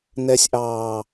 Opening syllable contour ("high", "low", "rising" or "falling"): high